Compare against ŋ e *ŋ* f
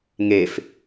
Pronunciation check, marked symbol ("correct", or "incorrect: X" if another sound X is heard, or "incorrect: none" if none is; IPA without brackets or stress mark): incorrect: none